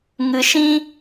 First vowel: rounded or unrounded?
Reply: unrounded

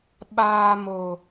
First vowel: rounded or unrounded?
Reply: unrounded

